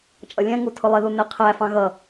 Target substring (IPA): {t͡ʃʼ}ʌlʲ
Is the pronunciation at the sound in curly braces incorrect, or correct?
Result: correct